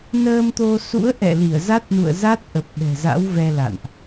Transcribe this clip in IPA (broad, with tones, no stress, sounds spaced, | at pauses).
n əː˧ m t̪ o˧ s ṵ˧˥ ə̯ ʔ ɛ̰˧˨ l i˧˩ ə̯ z a˦˥ t̚ n ṵ˧˨ ə̯ z a˦˥ t̚ ʔ ə˨˩ p̚ ɓ ɛ̤˨˩ z a̰˧˥ w v ɛ˧ l a̰˧˨ n ʔ